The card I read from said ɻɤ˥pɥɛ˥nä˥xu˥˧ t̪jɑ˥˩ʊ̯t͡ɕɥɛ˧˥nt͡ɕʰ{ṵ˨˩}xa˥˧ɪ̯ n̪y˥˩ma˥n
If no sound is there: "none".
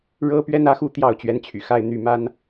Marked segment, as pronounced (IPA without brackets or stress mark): y̰˨˩